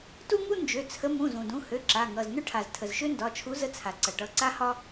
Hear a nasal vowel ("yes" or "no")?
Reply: yes